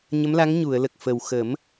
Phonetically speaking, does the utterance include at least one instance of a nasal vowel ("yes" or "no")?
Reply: no